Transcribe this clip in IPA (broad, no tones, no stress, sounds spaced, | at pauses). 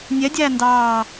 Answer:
nʲ ɛ dʲ æː n d ɑː